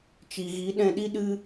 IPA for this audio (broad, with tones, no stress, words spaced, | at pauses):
t͡ʃi˨ɣi˨˦ɗɛ̃˧ɗi˦ ɗɨ˦